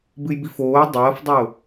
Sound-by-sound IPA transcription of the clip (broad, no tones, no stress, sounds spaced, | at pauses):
b ɨ j b i f oː dˤ ɐː f dˤ o